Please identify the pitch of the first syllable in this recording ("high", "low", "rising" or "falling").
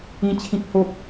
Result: high